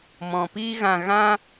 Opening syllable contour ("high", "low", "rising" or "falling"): low